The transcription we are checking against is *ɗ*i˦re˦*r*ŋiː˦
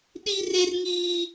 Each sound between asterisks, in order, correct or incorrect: correct, correct

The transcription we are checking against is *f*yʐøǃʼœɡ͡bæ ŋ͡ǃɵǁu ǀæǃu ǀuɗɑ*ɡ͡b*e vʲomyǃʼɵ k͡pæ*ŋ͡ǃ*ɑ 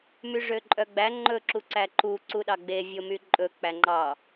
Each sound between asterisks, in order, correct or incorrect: incorrect: m, correct, correct

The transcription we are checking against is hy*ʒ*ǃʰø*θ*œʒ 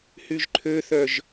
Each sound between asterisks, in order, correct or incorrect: correct, correct

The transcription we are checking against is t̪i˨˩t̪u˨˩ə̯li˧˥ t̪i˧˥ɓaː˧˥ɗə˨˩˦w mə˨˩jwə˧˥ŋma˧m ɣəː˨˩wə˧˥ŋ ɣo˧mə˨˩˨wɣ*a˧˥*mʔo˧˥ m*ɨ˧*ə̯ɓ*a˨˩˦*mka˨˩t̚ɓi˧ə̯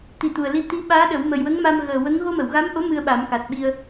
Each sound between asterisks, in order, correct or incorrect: correct, correct, correct

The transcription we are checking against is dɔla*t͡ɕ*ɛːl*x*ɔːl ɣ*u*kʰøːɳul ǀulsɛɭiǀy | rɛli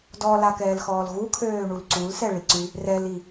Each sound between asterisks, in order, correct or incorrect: incorrect: k, correct, correct

